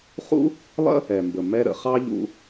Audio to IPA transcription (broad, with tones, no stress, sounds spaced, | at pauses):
χ ṵ˥ | lˠ ə̰˥ | ɛ˩ m b ə˩ m ɛ˧ ɾ ə̰˩ χ ɑ˥ ʎ ṵ˧